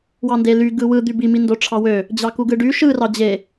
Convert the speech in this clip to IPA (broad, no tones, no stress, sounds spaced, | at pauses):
w ɑ n d e l y ɡ ɯ w ɯ d̪ y b i m i n d o ʈ͡ʂʰ ɑ w ø | d͡ʑ ɑ k u ɡ ɯ ɖ y ʃ ɯ r ɑ d͡ʑ e